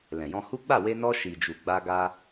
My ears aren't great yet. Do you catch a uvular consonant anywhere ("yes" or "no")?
no